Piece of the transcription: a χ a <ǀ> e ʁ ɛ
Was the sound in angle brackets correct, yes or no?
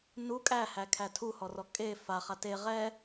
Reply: no